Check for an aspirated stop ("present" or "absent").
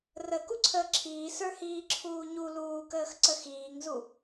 present